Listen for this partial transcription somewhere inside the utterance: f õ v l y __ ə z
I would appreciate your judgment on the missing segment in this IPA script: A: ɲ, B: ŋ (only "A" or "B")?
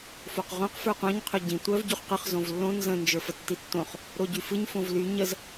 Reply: A